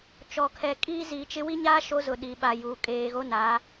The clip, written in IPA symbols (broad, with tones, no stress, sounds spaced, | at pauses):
t͡ʃ ɔ˨ kʰ ɛ˨ kʼ iː˦ z i˨˦ t͡ʃ ɪ˦ w i˦ ɲ aː˦ ʃ o˦ z ʊ˨ ɗ i˨ ɓ a˨ j uː˨ kʼ eː˨ ɣ o˦ n aː˨˦